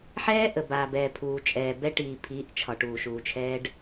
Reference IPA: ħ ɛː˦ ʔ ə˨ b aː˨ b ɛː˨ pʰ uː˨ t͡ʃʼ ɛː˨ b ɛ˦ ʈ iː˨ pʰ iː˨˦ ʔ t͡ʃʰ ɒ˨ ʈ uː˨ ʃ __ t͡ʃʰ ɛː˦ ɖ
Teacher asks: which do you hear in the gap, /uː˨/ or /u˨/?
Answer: uː˨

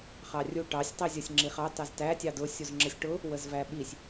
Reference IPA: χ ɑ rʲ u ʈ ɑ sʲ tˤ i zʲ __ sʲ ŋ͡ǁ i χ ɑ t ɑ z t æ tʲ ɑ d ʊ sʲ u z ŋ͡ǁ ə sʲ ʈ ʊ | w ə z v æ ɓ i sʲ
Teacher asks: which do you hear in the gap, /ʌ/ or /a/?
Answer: ʌ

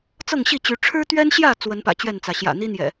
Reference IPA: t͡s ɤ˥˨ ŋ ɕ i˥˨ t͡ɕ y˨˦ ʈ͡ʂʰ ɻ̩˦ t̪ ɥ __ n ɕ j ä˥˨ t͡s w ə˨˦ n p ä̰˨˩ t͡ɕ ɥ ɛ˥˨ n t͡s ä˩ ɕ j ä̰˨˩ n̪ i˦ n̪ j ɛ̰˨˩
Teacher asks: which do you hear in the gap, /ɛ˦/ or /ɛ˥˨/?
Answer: ɛ˦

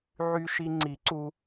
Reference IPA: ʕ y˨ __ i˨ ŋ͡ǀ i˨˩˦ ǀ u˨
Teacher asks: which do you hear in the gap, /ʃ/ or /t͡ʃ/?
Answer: ʃ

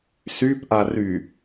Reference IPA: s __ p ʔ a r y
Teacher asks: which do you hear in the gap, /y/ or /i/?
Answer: y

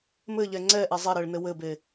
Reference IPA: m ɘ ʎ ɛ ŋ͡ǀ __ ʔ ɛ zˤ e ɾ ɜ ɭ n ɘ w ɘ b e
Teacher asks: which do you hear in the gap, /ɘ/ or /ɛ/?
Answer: ɛ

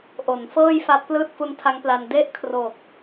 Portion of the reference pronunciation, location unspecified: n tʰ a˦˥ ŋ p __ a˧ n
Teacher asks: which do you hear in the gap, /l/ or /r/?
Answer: l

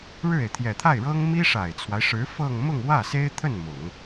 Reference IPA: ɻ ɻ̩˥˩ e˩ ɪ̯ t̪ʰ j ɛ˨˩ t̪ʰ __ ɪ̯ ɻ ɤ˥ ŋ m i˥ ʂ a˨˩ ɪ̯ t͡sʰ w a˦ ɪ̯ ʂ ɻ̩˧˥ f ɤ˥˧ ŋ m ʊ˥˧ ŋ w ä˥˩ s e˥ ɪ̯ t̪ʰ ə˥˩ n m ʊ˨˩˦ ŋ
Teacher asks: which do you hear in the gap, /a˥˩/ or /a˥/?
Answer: a˥˩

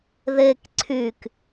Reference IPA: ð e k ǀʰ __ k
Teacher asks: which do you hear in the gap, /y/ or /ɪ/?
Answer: y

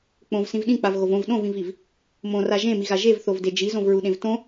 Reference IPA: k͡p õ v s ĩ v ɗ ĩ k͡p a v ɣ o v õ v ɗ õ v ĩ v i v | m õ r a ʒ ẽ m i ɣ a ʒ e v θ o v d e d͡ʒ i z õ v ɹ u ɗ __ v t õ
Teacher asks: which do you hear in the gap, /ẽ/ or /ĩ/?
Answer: ẽ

